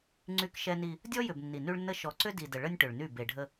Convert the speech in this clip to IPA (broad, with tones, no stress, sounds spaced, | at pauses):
ŋ͡ǀ y˦ k ʃ ɛ˦ n i˦ | dʲ ɔ˦ j ʏ˨ b nː i˨ n y˦ ɭ nː ə˦ ʃ ɔ˨ ǀ ʏ˦ d i˨ d ə˨ ɭ ə˦ nʲ ʈ ʏ˨ ɭ n y˦˨ b e˨ ɖʱ ə˦